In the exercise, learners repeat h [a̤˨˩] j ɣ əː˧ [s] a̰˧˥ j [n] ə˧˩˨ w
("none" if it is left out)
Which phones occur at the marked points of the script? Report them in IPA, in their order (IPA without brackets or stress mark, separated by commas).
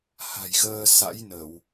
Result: a̤˨˩, s, n